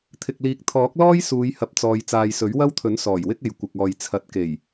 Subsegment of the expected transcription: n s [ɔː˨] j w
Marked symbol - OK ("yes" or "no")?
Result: no